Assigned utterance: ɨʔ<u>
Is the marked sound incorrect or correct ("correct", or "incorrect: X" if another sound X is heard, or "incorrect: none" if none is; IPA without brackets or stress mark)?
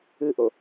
incorrect: o